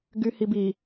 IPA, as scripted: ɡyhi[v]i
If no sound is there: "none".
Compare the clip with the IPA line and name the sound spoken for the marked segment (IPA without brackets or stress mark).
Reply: b